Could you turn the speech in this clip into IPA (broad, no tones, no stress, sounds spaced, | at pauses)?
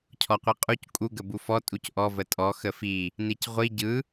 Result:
cʰ ɔ qʷ i qʼ u c kʼ u ɡ ə b u f ɔ tʼ u c ʔ ɔ v ə tʼ ɔ x ə f i | n i c ʁʷ i ɟ ɯ